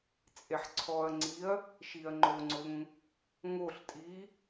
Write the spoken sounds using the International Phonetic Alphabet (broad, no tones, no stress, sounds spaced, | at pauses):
t͡sʼ e ħ ǀʰ ɔ ɐ̯ ŋ͡ǀ i ɐ̯ | ʃ i ɐ̯ ŋ͡ǃ o ŋ͡ǀ ʊ ŋ | ŋ o ɬ tʼ i